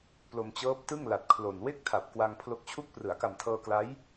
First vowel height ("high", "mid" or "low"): mid